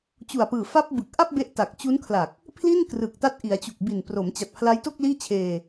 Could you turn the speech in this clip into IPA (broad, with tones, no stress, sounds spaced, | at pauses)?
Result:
t͡ɕ u˨˩ a̯ p ɯː˨˩ f a˦˥ p̚ b ɯ˨˩ k̚ ʔ a˥˩ p̚ b e˦˥ ʔ t a˨˩ k̚ t͡ɕ u˦˥ n kʰ l a˨˩ k̚ | pʰ l i˥˩ n k r ɯ˨˩ k̚ t a˦˥ t̚ ʔ i˩˦ a̯ t͡ɕ u˨˩ k̚ b i˨˩ n p r o˩˦ m t͡ɕ a˨˩ t̚ pʰ l a˦˥ j t o˥˩ k̚ l iː˥˩ t͡ɕʰ eː˧